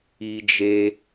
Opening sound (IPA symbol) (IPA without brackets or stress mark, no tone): i